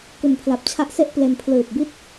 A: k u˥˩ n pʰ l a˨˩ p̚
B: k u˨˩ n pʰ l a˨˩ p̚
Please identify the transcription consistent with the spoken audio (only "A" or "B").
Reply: B